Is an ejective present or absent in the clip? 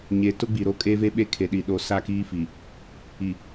present